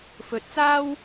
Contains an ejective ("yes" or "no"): no